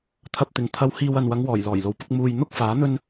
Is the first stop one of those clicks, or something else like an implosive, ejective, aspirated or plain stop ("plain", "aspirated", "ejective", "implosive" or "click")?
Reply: aspirated